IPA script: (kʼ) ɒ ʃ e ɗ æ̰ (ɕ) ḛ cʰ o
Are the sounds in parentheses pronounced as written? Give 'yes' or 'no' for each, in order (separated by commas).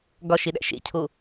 no, no